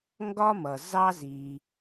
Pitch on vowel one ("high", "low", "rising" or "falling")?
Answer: high